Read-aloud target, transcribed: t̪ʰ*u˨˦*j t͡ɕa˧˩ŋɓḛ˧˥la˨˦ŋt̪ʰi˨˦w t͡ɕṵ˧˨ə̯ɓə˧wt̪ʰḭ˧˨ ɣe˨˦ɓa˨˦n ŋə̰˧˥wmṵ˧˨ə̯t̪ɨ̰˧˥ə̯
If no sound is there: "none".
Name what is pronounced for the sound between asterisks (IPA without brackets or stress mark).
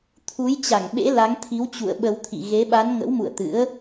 u˨˦